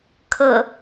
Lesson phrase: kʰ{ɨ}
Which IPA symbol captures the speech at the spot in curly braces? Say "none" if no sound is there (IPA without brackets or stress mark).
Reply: ə